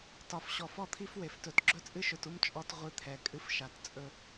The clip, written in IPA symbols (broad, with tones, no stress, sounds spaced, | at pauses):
t ɒ˨ f ɕ ɔ˨ f ɔ˦ t̪ʰ i˦ f w e˨ f t ɵ˨ t ɡ͡ǁ ɵ˦ t͡sʼ ɨ˦ ʃ ɵ˨ t u˦ m t͡ʃʼ ɔ˦ t ʁʷ ɨ˦ t̪ʰ ɛ˨ kʼ ɨ˦ f ʃ a˨ t t͡sʼ ɵ˦